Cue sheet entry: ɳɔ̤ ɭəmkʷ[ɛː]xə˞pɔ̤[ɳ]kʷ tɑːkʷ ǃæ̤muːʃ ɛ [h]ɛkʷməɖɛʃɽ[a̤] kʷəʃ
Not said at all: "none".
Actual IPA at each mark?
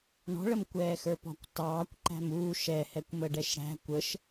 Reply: ɛː, none, h, æ̤

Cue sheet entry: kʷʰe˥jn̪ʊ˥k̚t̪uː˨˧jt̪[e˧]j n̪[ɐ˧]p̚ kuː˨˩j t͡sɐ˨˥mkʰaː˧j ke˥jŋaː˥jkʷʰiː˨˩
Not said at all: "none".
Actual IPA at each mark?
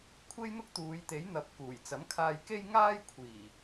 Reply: e˨˥, ɐ˨

